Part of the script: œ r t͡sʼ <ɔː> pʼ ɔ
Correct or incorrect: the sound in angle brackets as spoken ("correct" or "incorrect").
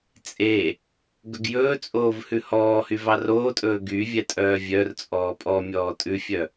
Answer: correct